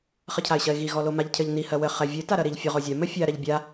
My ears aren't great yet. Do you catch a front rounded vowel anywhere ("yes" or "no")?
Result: no